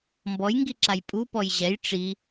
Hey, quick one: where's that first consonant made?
lips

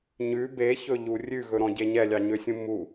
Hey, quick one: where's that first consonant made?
palate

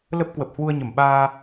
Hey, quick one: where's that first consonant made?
tongue tip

